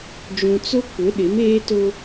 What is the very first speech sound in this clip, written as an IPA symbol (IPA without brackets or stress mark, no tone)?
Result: d͡ʒ